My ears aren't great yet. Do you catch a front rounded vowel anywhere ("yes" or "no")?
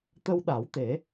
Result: no